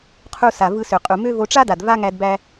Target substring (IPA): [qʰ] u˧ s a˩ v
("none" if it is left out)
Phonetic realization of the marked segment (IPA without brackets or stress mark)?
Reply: qʰ